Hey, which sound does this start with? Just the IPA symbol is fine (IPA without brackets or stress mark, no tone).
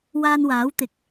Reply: w